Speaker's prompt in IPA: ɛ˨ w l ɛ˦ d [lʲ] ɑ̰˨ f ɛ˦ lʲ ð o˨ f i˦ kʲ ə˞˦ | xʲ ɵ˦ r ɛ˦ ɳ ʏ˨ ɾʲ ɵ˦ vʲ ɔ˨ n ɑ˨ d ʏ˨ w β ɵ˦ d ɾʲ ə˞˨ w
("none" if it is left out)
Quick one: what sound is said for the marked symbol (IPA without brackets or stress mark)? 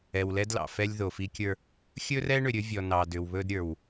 l